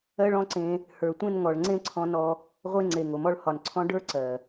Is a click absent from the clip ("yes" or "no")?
no